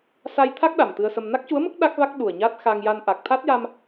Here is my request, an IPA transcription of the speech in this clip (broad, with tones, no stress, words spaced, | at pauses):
sa˧jt̪ʰa˦˥k̚ ɗa˨˩mt̪ɨ˧ə̯sə˧m na˦˥k̚cu˧˥ə̯mə˦˥k̚ ɗa˦˥k̚va˦˥k̚ ɗu˨˩ə̯ɲa˦˥t̚xa˧ŋja˧n ʔa˨˩k̚t̪ʰa˦˥t̚ja˧m